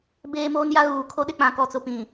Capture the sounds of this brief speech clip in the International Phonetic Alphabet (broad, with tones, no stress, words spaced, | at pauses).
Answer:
beː˦moː˦nja˦ ɣuː˨kʰo˦ɗɪ˦k͡pã˨ kɔ˨t͡sʊ˨pĩ˨